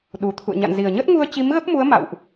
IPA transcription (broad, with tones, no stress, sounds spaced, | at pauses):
ɗ u˨˩ t̪ʰ ṵ˧˨ ə̯ ɲ a̰˧˨ n z i˨˩ ə̯ ɲ ə˦˥ t̚ ŋ u˧ ə̯ t͡ɕ i˨˦ m ɣ ə˦˥ p̚ m u˨˦ ə̯ m a̰˧˨ w ʔ